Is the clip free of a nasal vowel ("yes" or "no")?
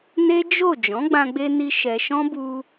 no